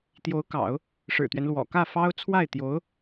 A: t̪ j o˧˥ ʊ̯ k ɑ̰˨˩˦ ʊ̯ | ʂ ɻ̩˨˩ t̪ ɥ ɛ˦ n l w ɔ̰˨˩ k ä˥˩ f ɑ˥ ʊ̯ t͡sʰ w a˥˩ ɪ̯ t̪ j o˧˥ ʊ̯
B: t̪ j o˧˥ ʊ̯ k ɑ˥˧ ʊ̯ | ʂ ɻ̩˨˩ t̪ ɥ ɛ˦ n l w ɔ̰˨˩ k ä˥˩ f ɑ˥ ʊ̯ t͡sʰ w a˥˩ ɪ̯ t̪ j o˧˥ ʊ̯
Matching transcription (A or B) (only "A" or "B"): A